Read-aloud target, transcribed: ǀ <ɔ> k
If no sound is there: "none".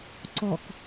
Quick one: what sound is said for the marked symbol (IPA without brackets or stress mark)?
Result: ɔ